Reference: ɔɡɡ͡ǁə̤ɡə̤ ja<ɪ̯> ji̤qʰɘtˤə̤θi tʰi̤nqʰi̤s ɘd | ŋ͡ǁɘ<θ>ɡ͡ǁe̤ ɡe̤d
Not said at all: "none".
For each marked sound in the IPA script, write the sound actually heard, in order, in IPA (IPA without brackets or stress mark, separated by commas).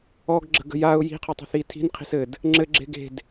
ʊ̯, none